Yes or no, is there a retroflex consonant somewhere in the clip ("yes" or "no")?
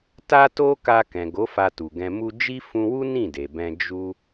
no